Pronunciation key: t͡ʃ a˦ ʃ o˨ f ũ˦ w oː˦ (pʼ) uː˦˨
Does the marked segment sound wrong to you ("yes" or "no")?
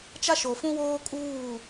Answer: yes